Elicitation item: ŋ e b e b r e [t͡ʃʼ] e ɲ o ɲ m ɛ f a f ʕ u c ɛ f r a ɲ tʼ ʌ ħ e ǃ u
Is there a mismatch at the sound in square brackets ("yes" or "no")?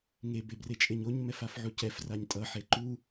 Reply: no